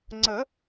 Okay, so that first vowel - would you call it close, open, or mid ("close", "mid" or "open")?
mid